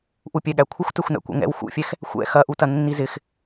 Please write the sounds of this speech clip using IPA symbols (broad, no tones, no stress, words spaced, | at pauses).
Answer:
ʔupʲɛɠækʷʰɪxʷ tɛxʷnæ̰kʷɛ̰ŋɛ̰w xṵfʲɛx | xʷɛ̰ xɐʔutɐ nːizɪx